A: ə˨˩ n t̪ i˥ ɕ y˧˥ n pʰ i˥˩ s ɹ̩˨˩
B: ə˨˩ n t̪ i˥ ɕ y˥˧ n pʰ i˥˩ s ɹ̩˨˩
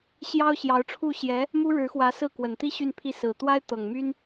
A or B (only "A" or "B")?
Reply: B